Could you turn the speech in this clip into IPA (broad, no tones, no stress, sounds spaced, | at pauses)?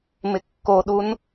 m ɪ kː o ɗ u n